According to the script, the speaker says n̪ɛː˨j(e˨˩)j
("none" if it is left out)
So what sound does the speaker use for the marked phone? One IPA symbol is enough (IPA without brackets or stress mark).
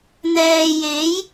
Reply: e˨˥